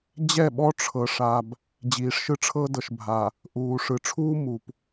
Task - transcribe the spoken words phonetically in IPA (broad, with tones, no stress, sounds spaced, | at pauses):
d͡ʑ ɛ˦˨ ɓ ɔ˦ ʈ͡ʂʰ ɤ˨ ʂ a˨ b | d͡ʑ iː˨ ʂ ʃ ɯ˦ ʈ͡ʂʰ ɤ˦ d ɤ˨ ʃ bʱ a˨ | ʔ uː˨ ʂ ɯ˨ ʈ͡ʂʰ uː˦ m u˨ p